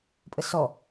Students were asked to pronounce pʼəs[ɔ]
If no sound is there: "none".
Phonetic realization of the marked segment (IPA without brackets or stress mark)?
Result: ɔ